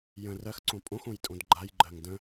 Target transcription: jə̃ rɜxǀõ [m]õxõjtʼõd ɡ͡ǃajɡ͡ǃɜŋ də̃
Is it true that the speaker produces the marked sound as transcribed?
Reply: no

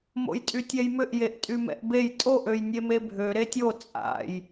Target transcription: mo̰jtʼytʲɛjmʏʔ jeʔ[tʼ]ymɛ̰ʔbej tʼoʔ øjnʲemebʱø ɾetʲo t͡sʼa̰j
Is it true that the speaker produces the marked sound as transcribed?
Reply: yes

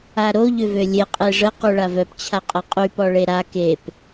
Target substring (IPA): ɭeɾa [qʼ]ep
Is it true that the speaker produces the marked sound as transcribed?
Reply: no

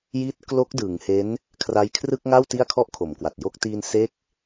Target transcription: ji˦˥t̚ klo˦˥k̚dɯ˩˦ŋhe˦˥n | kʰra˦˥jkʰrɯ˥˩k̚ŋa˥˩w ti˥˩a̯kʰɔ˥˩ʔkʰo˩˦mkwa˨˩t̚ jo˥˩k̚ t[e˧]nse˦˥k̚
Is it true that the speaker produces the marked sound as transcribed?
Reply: no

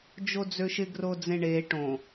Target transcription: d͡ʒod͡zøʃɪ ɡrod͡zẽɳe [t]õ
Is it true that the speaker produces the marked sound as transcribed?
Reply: no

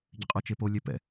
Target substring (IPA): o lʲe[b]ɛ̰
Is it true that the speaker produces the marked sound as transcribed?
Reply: no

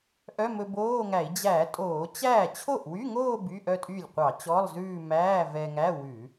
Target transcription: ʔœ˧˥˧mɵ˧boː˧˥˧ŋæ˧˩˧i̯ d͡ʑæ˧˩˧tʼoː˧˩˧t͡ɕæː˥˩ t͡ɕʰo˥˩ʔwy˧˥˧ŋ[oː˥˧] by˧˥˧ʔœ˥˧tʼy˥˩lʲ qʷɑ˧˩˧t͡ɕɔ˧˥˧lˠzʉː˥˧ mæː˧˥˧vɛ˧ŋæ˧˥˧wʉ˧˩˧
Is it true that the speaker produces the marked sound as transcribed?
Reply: yes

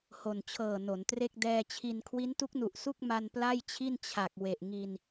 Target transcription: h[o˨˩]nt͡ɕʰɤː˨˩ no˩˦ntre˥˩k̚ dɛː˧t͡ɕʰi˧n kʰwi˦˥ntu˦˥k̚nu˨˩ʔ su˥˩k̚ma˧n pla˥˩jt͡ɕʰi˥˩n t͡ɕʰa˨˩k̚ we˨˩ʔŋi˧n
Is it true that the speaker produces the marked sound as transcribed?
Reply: yes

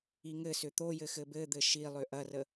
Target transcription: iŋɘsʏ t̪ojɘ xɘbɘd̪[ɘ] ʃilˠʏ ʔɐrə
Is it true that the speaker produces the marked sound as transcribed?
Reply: yes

